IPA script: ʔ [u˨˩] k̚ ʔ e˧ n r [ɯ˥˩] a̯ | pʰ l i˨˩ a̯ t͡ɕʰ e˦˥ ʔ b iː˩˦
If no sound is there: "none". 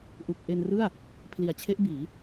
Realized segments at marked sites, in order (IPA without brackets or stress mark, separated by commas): u˨˩, ɯ˥˩